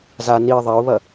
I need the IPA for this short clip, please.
z a n i ðˤ ɐ ʊ̯ β ɐ

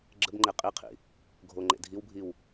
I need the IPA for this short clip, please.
ɡ͡ǁ ə b ŋ͡ǃ e qʼ i qʰ ḭ | ɡʱ o ŋ͡ǃ ḛ dʱ i w bʱ i w

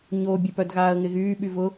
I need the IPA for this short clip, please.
ɲ o bʲ ə p œ d ɣ aː ə̯ ŋ ɪ ɣ yː ɓ y v ʊ

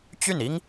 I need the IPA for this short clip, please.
t͡ɕ y˥˩ n i˥ ŋ

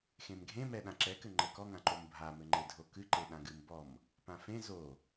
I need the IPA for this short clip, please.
x ẽ m ɡʱ ẽ m ɛ ɗ ã ǁ ɛ k ɘ ŋ͡ǃ ɛ k ɔ ŋ ã ǃ o m bʱ a m ɘ ŋ͡ǃ e dʱ o k ɨ ǃ e ɗ ã ɡ ɨ m b ɔ m | p ã f ẽ z o

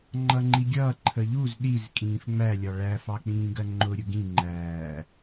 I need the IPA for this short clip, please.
ŋ͡ǃ ʌ ŋ͡ǃ i ɡʲ ʌː ǃʰ ə ʎ u z ɗ i z kʼ ĩː f ŋ͡m æ lʲ ɒ ɭ æ f ɑ k͡p ĩː ɡ ɜ ŋ͡ǃ ʊ ɾʲ ʊ ɡ ĩ ŋ͡ǃ æː

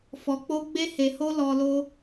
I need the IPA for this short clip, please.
f ɔ˨ k͡p o˧ ɡ͡b e˧ h e˨ h o˧ l ɔ˧ l o˦

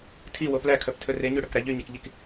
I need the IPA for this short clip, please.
tʰ i w o p l æ kʰ œ p tʰ ɵ r e ɲ ʉ ɽ ɵ k ɾ æ ʎ y ɲ ɛ k ʎ i k

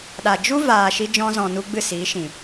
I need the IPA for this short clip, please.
ɗ a˨ d͡ʒ u˦ v aː˨ ʃ i˧ d͡ʒ ɔ̃˧ z ɔ̃˨ n u˦ ɡ͡b ɨ˦˨ s iː˨˦ ʃ ĩ˨

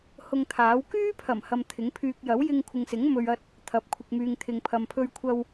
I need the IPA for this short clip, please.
h ʊ˧ ŋ t̪ʰ aː˨˥ w k yː˥ pʰ ɐ˨˩ m h ɐ˧ m t̪ʰ ɪ˨˥ ŋ pʰ yː˧ k̚ j ɐ˨˥ w j ɪ˧ ŋ kʷʰ ɪ˨ ŋ s ɪ˨˥ ŋ m ɵ˨ ɥ ɐ˧ t̚ | t̪ʰ ɐ˨˥ p̚ kʷʰ ɪ˨ k̚ m yː˨ ŋ t̪ʰ ɪ˨ ŋ pʰ ɐ˨ m pʰ ɵ˧ ɥ kʷʰ ɐ˧ w

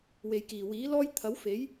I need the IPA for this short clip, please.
w e˨ j k iː˨˩ w iː˨˥ l ɔː˥ j t̪ʰ ɐ˨˥ w f e˨˥ j

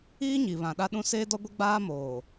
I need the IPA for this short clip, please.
iː˦ ɲ i˨ β ã˨ ɗ a˦ ɗ ũ˦ s eː˦ d ɔ˦ ɡʷ e˦ ɡ͡b aː˦ m oː˨

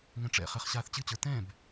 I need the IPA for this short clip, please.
ŋ ɛ̃ ʈ͡ʂ ɛ̰ χ ɛ χ ɕ aː θ t͡ɕ ɨ t͡ɕ ə˞ t ɛ̃ b

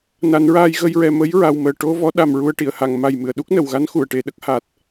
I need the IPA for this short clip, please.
n a˨˩˦ n ɹ aː˧ j ɣ ə˧ j ɹ ɛ˨˩ m ə˧˥ j ɹ a˨˩ w m əː˨˩ ʈ o˧ v ɔ˧˥ ɗ a˨˩ m ɹ u˧ ə̯ ʈ i˨˩˨ ə̯ h a˨˩˨ ŋ m a˨˩ j m ɨ˨˩˨ ə̯ ɗ u˦˥ k̚ n ə˨˩˨ w ɣ a˧˥ n x u˨˩˨ ə̯ ʈ e˨˩˦ ɗ ə˦˥ k̚ h a˨˩ t̚

